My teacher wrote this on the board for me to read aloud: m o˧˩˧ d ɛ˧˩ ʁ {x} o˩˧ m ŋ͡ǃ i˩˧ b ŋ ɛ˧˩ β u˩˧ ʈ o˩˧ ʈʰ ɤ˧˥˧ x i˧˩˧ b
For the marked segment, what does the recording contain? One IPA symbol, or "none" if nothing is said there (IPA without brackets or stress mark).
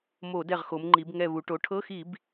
x